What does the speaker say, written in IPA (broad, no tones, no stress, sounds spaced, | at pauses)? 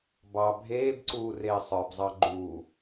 b ɑ bʱ eː b ǀ uː r eː sˤ ə˞ b zˤ ɑ ɡ͡ǃ uː